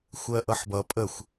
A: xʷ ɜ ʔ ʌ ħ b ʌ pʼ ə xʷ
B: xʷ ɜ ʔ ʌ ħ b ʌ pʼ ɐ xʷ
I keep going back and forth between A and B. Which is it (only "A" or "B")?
A